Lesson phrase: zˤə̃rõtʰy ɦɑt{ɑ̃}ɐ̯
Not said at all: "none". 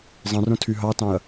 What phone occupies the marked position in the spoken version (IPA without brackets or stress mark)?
ɑ̃